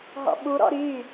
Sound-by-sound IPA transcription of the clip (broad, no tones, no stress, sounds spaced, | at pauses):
ɦ ɔ̰ ɓ u ɾ ɔ̰ ɾ y